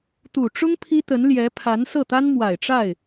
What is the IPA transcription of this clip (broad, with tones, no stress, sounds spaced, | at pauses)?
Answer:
t̪ u˨˩ ʈ͡ʂ ʊ˥ ŋ pʰ i˥ t̪ ə˧˥ n l j ɛ˧˥ pʰ a˧˥ n s ɤ˥˩ t̪ a˥ n m w a˨˩ ɪ̯ ʈ͡ʂ a˥˩ ɪ̯